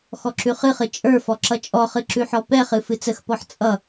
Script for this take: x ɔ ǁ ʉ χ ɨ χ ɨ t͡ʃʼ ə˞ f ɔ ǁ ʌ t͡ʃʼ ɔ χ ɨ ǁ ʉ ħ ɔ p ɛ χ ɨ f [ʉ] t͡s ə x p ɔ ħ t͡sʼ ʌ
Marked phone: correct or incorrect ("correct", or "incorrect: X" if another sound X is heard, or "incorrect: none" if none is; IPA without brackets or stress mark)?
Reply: incorrect: ɨ